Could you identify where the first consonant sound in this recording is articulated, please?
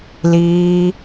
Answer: alveolar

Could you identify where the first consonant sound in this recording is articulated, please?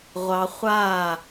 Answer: uvular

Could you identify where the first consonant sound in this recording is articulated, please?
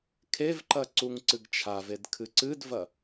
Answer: velar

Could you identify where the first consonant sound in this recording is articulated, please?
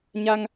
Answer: palatal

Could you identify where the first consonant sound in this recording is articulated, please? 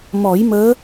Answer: labial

